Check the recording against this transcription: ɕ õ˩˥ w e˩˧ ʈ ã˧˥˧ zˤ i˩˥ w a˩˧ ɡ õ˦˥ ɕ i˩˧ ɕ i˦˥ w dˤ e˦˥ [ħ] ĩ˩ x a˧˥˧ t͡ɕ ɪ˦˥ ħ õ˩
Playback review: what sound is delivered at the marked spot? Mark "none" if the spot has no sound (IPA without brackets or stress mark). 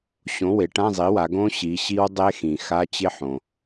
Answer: x